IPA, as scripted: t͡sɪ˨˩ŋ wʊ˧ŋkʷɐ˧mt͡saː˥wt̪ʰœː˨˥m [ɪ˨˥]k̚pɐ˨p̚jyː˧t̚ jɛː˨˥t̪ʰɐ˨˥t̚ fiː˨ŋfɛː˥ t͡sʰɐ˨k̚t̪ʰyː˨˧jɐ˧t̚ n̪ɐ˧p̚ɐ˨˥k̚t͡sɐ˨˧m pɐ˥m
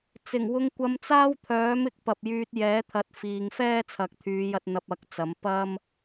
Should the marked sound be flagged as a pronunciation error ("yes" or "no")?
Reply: no